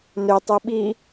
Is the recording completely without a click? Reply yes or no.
yes